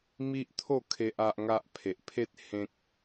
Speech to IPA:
mi˦ʔt̪ʰo˥˧ kʰe˦ʔa˦ʔŋa˦ʔ pʰe˨ʔpʰe˦t̚ hẽ˦k̚

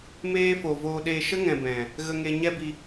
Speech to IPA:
meː˧fo˨ vo˧ɗe˧ ʃə˦ŋɛ̃˨ bɛ̃˨ | ɣə˧ŋe˧ ɲɛ˦bi˧

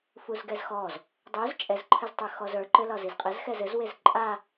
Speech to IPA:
fuzɡɛzxɔz | dˤuz t͡ʃʼɛzǃʰɘz tˤʉxɔzə˞ ǃɘlɒ zizqʼɘz xɛzɘzwez ǃʼa

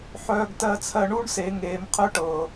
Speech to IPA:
ħœː˧ɡtɜ˧˥t͡sʰɜ˧ ɳu˧˥ɳse˩˧ ŋeː˩˧mqʰœ˧˥ʈɤː˩

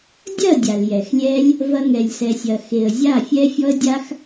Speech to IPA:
dʲɐ˦˨ dʲa˨ljɛ˨xlʲɛ˦lʲ | vɐ˧ŋɛ˨lʲsɛ˨sʲɐ˨ xe˨ə̯zʲa˦˨ fʲɛ˦fʲɔ˦ə̯dʲa˦x

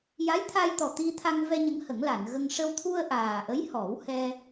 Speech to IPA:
ja˧˥jt̪ʰa˧jt̪ɔ˨˩ t̪i˧t̪ʰa˧ŋ vɛ˧ ɲə˧˥ŋhə˨˩˦ŋla˨˩˨nɣə˧ŋ ʂə˧wt̪ʰu˧ə̯ ʔaː˨˩ʔə˧˥jhɔ˨˩˦w hɛ˧

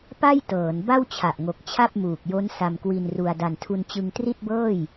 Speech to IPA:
pa˥˩jtɤː˩˦n ba˥˩wt͡ɕʰa˨˩ʔŋo˨˩k̚ t͡ɕʰa˥˩p̚muː˨˩k̚jo˦˥n sa˧mkwi˧nru˧a̯ da˨˩ntʰu˧nt͡ɕɯ˧ŋ tri˥˩t̚bɤː˥˩j

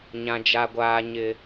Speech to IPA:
ɲã˦d͡ʒa˦ɡʷaː˦ɲɪ˦

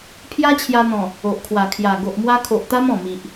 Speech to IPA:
pʰja˧ t͡ɕʰja˧n̪ɔ̃˨˩ | o˨ʔkʰwa˨˩kʰja˨˩ ɡo˨ʔmwa˧kʰo˨ʔ t̪a˦m ɔ̃˨˩mi˨ʔ

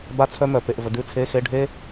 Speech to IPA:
ba˥t͡sʰœ˥mœ˨˩˦ pe˧ʔvə˧ dʉ˧˥˧t͡sʰe˧˥˧xe˧˥˧ ɖʱe˥

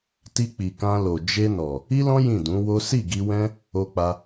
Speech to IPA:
ti˧k͡pi˨ kã˧lo˨ d͡ʒe˧nɔ˨ | i˦lɔ̃˦ jĩ˦˨dũ˨˦wo˦ si˦˨ɡi˧wɛ̃˦ | o˧k͡pa˧

